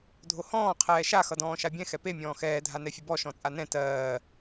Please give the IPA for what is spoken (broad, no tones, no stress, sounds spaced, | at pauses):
dʱ o h ɔ̃ː qʰ ɛː ʃ a x ʌ d ɔ̃ː ʃ a bʲ ɛ̃ x ɛ p e mʲ ɔ̃ː x ɛː dʱ a n ɛ fʲ ə b ɔ ʃ ɔ̃ t͡sʼ a n ɛ̃ t ɜː